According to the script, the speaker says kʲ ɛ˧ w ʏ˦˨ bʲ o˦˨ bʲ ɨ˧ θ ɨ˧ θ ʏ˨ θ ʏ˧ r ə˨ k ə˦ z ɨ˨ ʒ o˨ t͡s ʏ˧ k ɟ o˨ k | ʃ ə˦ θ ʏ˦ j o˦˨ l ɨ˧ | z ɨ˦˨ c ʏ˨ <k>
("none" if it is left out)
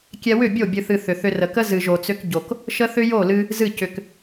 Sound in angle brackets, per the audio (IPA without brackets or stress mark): k